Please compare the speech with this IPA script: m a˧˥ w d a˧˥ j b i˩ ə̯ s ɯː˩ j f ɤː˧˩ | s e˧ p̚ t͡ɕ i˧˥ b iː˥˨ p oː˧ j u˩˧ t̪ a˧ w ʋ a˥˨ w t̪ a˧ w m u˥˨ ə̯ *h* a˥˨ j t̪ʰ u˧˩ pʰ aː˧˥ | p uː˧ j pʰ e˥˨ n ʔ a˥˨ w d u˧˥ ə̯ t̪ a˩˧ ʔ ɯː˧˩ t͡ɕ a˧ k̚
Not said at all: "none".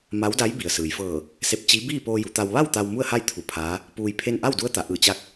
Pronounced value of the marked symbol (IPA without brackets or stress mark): h